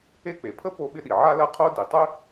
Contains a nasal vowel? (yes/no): no